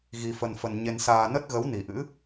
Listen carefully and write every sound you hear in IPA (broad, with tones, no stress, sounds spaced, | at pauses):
ɣ i˧ f ə˧ n f ə˧ n ɲ e˧ n s aː˧ n ə˦˥ t̚ ɣ ə˨˦ w n i˨˩ ʔ ɨ̰˧˥